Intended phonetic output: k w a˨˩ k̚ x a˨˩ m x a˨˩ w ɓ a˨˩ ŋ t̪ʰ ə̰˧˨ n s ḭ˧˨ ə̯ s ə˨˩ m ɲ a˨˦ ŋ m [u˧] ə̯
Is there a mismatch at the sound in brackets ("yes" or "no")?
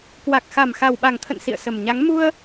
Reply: no